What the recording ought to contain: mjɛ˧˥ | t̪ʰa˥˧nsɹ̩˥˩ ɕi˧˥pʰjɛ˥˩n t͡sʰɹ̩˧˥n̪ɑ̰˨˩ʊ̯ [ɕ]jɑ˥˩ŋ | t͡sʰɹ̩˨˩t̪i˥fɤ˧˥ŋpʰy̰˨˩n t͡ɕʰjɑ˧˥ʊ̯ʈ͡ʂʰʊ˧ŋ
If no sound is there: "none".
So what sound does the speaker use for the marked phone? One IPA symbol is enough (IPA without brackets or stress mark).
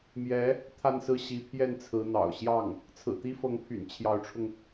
ɕ